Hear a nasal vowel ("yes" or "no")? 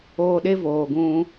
yes